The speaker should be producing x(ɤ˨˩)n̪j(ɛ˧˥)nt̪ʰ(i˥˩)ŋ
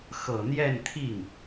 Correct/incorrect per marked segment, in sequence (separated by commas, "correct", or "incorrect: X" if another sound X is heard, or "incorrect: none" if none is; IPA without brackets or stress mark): correct, incorrect: ɛ˥˧, correct